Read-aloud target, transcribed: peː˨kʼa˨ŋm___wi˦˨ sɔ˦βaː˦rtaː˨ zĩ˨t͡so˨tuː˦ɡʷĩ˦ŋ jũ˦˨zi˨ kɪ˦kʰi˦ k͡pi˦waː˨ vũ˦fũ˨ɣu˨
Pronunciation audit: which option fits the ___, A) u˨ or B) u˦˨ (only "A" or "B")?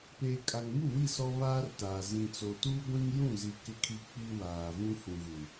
B